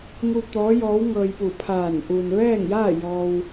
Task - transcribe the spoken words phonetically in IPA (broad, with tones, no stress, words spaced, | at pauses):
ŋu˧ t̪ɔː˧˥jɔː˧˥w ŋɤː˧jpu˧˩pʰaː˧˩n ʔu˩nʋɛː˥˨ŋjaː˥˨ jɔː˧w